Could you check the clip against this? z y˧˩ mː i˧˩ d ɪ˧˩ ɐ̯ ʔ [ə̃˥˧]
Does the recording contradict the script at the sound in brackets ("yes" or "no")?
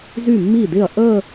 yes